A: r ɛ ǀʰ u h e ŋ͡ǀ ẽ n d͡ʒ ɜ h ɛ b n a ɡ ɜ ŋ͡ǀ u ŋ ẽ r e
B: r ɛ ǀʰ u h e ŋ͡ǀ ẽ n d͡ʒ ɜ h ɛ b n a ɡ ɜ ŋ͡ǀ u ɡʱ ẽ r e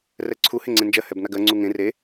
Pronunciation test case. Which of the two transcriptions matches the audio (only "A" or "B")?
A